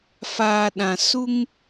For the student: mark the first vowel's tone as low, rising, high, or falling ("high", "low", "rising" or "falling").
low